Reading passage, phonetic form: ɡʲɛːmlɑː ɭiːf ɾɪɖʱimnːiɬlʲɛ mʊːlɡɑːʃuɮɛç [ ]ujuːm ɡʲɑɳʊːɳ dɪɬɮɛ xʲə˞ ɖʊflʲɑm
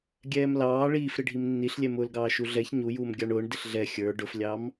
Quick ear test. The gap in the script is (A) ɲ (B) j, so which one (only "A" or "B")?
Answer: A